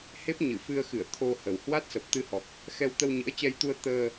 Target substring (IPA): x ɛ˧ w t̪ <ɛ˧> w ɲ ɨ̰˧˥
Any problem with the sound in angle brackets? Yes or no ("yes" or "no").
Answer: yes